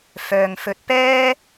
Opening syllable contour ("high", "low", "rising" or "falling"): low